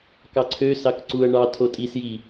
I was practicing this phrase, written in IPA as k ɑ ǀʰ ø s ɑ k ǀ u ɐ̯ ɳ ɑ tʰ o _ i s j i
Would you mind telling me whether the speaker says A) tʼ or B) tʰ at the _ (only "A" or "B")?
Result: A